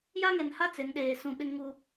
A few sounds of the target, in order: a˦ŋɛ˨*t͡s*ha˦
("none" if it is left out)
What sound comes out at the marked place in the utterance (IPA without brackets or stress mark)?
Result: n